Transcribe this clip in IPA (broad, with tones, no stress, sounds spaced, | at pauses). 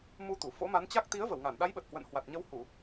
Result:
m u˧ t̪ u˧˩ f o̰˧˥ m a˨˦ n t͡ɕ a˦˥ k̚ t̪ i˨˦ ə̯ v ə˧˩ w ŋ a˧˩ n ɗ a˨˦ j ɓ ə˨˩ t̚ h w ə̰˧˨ n h w a˨˩ t̚ ɲ ə˨˦ w h u˧˩˨